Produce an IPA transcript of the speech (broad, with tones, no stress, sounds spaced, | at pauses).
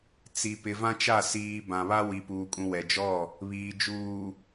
t͡s i˨ p ɪ˨ v ã˦ t͡ʃ a˦˨ s iː˨ b ã˨ β a˦ w i˨ p uː˨ kʼ ũ˨ w ɛ˨ d͡ʒ ɔ˦˨ | β iː˨ d͡ʒ uː˨